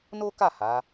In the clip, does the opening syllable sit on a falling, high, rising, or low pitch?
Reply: high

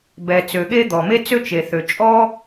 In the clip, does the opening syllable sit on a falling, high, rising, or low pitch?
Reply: low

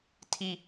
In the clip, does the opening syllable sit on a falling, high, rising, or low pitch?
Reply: high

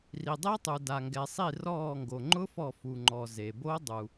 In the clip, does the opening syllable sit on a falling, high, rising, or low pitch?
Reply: low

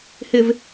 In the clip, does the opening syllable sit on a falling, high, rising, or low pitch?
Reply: low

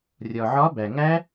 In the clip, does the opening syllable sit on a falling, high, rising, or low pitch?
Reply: low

